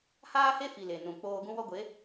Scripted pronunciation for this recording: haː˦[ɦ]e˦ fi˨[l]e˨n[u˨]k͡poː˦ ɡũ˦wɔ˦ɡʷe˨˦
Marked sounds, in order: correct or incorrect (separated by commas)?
incorrect, correct, incorrect